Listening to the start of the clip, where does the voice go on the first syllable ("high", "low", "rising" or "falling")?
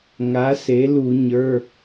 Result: rising